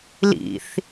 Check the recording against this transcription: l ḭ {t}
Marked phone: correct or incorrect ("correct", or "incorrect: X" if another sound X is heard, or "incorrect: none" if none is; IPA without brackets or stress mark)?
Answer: incorrect: θ